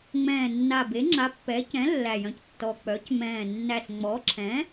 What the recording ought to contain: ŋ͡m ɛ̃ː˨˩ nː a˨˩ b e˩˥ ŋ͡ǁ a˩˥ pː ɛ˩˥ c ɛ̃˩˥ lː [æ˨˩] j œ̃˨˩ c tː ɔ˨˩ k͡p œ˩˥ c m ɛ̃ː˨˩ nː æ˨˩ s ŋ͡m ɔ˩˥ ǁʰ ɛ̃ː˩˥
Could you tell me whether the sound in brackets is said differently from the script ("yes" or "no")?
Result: no